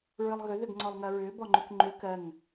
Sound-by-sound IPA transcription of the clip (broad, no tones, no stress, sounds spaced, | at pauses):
ɹ ɨ lˠ ɣ ʏ ð ʏ ɡ ŋ͡ǀ ɔ lˠ ŋ ɜ ɹ ʏː b ɔ ŋ͡ǃ ʏ k ŋ͡ǃ ʏ k ɜ ŋ